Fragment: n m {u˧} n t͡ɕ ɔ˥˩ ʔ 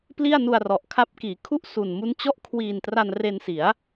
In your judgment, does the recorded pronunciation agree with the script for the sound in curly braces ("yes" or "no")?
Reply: no